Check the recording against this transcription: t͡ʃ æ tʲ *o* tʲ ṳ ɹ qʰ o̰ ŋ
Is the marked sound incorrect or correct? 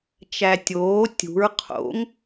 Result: incorrect